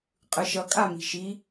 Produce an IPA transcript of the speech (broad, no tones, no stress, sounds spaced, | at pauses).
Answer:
qʼ ɯ ʃ ʌ kʼ a m i̤ ʃ i